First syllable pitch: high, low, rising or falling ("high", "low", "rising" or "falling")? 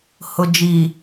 low